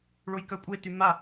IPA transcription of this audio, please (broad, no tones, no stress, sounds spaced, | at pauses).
ɭ o j k œ kʷʼ e t y m a